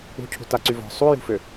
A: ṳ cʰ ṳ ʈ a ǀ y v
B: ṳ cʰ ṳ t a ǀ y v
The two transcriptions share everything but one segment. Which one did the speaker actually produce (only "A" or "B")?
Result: B